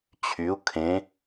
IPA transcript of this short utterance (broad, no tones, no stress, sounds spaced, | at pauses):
t͡ɕʰ y u̯ kʰ ẽ